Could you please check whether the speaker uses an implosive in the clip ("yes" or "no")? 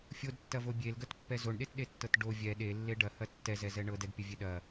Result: yes